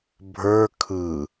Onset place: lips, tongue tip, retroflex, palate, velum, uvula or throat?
lips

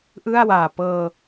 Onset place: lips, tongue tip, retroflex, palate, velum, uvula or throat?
throat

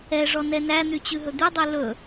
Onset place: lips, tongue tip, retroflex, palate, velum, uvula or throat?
retroflex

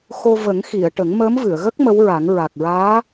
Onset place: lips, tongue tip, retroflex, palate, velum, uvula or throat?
velum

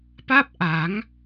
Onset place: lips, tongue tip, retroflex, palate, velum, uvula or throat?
lips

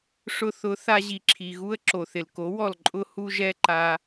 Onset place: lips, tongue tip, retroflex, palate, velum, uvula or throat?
retroflex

